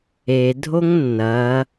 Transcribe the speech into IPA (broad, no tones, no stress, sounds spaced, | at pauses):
e dʱ o ŋ nː ɐ